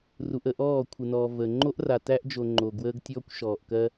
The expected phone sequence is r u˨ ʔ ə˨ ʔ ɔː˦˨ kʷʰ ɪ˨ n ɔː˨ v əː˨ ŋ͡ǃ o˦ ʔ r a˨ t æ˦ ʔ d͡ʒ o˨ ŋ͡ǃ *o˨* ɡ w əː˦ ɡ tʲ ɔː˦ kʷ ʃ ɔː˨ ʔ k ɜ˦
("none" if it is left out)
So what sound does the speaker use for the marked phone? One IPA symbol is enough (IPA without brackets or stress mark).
o˨